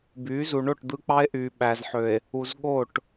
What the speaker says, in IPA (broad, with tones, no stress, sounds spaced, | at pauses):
b yː˨˦ z u˨ ɳ o˦˨ ʈ d̪ ɯ˦ k͡p ɑ˦ e̯ ʔ yː˨ ɓ æ˨ z ħ ø˨ e̯ | u˨ z ɠ o˦˨ ʈ